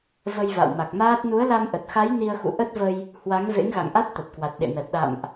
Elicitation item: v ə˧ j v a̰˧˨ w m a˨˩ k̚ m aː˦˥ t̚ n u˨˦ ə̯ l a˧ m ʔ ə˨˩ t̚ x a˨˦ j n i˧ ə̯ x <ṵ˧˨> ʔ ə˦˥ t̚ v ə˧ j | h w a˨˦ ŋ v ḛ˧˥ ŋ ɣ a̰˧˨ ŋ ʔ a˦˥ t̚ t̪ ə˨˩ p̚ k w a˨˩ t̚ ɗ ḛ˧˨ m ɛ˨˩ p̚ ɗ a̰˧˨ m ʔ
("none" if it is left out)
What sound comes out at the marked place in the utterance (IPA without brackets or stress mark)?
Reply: ṵ˧˨